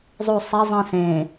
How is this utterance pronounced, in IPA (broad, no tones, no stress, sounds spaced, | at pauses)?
zˤ u sˤ ɛ zˤ ĩ s ẽ